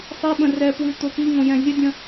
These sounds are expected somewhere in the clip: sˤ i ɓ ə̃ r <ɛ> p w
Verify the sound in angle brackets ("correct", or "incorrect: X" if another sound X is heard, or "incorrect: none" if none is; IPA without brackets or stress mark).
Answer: correct